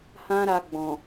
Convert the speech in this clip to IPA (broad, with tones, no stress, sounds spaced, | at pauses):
h ã˦ ɾ a˧ ɡ͡b ɔ̃˨